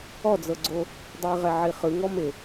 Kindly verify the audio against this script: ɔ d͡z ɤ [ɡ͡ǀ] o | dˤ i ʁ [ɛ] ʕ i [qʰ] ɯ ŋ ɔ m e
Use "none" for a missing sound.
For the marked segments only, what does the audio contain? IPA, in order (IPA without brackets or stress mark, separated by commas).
ɡ͡ǀ, ɛ, χ